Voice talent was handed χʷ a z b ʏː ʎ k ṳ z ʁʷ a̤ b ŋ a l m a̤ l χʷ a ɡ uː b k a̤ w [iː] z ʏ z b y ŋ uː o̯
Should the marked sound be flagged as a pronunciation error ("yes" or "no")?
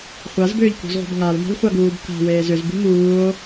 yes